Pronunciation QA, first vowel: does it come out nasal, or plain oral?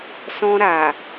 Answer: nasal